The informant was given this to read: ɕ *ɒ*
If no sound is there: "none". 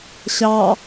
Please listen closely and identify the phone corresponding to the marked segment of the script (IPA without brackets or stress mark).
ɑ